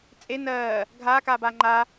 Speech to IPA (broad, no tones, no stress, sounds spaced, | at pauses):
t͡sʼ e n ɜː | ɡʱ aː k aː b aː ŋ͡ǃ a